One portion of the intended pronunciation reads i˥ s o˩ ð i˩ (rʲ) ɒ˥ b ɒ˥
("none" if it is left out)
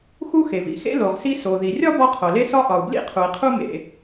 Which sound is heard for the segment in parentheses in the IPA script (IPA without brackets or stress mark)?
rʲ